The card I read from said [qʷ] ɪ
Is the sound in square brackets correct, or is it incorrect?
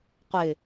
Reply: correct